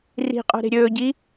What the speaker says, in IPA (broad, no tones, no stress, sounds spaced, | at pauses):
r i̤ qʼ o̤ ɾ e̤ ɾʲ ɵː ɟ i